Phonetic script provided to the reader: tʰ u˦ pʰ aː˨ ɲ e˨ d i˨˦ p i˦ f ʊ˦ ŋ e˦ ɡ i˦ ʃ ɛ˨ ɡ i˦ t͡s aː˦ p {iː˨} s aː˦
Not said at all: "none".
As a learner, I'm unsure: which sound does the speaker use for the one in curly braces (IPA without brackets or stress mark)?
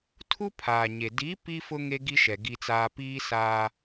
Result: iː˦